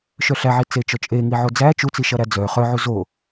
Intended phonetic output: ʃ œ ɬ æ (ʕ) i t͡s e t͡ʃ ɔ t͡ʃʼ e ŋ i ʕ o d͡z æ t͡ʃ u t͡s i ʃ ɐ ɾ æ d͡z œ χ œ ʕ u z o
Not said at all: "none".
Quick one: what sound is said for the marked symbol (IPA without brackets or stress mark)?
ʕ